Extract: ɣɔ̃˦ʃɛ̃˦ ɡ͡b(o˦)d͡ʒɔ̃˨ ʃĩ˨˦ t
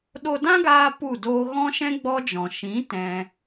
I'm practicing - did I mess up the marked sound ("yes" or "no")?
yes